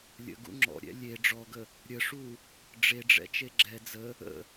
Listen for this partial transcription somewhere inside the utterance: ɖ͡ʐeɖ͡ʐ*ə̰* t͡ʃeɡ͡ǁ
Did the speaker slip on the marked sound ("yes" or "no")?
yes